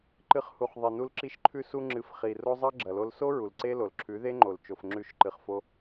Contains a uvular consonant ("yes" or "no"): yes